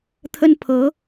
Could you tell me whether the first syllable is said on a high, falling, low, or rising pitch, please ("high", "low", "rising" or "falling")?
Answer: high